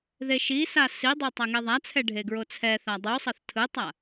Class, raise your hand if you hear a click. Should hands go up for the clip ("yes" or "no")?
no